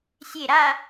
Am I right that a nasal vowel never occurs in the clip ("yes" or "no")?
yes